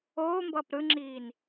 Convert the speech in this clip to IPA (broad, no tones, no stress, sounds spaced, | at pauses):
oː m b ʌː p ɾ ɯ ŋ͡ǁ iː n